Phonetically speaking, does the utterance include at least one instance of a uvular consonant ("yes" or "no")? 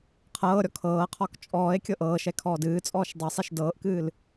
yes